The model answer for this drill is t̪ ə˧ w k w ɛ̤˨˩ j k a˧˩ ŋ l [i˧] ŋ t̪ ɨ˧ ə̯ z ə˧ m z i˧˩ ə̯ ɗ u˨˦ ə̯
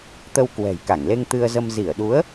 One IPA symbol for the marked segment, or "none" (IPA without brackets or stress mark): e˧